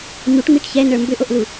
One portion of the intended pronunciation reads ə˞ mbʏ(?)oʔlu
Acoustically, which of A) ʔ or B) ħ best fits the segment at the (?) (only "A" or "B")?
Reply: A